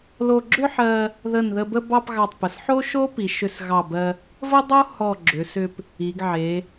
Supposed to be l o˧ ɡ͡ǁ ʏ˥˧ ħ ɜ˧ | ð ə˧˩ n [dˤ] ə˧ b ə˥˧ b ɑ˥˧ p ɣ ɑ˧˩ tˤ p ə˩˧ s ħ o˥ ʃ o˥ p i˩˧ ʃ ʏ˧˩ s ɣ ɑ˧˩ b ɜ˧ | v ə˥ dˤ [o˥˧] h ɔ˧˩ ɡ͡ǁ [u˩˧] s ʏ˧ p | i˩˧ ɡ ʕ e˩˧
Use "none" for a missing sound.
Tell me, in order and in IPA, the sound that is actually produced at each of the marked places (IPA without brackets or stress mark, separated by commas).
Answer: ð, o˥, ʏ˩˧